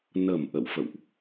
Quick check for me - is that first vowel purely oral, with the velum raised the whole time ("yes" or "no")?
yes